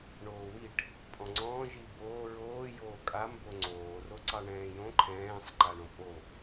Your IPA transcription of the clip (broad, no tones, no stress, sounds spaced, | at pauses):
ɳ oː w i ʈ | pʼ ɔ̃ ŋ͡ǀ ɔ̃ː ʒ i b oː ɹ oː j oː kʼ a m b o ŋ͡ǀ oː r o ǀ ɑ ɳ ɛ̃ː j õ ǃʰ ɛ̃ː sˤ ǃ a ɳ õ pʼ o